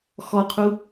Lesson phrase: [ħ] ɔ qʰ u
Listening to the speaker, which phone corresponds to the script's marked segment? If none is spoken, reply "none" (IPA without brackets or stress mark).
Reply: x